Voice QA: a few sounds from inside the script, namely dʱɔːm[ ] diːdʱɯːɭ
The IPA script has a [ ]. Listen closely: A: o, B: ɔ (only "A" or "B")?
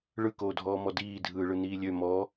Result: B